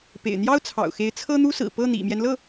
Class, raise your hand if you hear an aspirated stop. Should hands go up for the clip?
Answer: yes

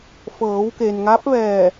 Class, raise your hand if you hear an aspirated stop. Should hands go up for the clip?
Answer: no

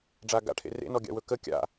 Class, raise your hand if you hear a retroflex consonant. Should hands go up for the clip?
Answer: yes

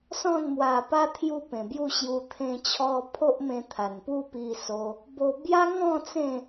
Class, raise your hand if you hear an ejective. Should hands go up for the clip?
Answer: no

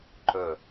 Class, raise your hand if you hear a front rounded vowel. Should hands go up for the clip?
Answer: no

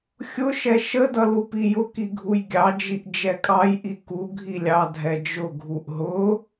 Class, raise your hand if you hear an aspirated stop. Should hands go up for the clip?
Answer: no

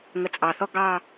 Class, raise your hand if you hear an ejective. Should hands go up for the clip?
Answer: yes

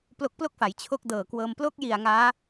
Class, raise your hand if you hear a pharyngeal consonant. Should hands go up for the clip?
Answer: no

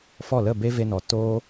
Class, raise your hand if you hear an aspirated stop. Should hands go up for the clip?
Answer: no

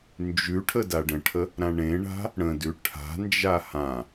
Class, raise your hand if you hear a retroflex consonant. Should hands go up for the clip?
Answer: yes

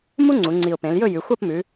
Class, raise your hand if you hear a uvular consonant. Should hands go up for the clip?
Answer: no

